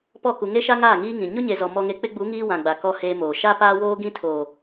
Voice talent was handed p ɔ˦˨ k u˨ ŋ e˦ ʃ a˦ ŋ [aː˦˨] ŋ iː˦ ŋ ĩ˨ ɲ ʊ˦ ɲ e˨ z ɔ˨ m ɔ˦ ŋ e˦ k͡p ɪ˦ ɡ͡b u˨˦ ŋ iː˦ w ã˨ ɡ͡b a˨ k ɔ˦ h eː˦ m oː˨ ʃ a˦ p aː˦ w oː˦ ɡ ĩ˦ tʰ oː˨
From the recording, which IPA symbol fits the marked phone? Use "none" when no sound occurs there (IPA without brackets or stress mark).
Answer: aː˦˨